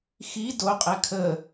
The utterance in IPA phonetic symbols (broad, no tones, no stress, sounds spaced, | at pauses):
x i d o qʼ ɛ kʰ ə